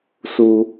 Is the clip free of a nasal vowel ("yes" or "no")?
yes